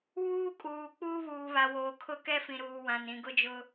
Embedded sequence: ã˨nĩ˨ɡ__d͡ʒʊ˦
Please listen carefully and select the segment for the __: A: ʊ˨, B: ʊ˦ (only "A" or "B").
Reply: B